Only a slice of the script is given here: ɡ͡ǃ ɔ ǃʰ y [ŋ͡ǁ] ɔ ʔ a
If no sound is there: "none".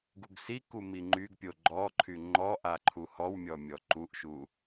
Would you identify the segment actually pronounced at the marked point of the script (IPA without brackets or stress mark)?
ŋ͡ǃ